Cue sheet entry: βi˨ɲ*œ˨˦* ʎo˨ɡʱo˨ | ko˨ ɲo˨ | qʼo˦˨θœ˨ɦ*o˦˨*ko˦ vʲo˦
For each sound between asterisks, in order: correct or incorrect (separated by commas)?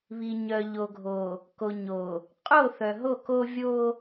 incorrect, correct